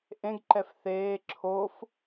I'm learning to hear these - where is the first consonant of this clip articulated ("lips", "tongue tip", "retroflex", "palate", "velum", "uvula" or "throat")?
throat